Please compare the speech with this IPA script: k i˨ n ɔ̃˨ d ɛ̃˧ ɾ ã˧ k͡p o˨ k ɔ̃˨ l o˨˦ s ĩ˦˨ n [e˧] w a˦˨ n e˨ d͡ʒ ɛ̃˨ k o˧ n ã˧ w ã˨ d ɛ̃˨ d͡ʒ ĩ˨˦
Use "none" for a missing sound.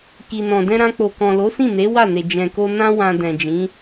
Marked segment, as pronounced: e˨˦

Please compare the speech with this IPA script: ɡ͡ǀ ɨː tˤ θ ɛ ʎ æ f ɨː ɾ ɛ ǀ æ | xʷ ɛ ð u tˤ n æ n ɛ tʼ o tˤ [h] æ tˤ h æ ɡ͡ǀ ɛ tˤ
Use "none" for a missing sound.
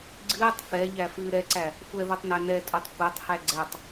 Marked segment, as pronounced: xʷ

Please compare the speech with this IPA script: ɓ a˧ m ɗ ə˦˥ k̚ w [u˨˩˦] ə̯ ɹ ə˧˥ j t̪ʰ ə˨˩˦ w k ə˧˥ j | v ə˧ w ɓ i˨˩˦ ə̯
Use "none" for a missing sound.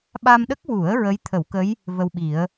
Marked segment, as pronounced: u˨˩˦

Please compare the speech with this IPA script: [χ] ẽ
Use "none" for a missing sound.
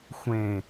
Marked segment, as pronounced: xʷ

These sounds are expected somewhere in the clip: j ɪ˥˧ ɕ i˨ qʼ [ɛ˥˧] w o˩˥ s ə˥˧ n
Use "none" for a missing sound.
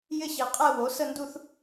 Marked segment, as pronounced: ɛ˥˧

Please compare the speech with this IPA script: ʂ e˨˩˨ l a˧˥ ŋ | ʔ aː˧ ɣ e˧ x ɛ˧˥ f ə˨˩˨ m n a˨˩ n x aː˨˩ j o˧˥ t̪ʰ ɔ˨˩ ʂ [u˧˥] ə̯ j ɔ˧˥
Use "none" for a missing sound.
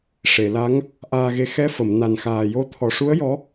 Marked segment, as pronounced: u˧˥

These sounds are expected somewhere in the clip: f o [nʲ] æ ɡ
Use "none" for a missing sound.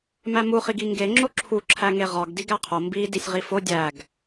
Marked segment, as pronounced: dʲ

